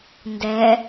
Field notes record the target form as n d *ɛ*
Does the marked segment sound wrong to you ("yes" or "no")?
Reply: no